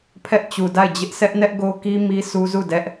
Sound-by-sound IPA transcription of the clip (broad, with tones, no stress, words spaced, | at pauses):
pʰɛ˦ʔt͡ɕu˨da˦˨ɪ̯d͡ʑɪ˦ʔ sʰɛ˦ʔnɛ˦ʔɡo˦ki˦ mi˦su˦zu˦˨ dɛ˦ʔ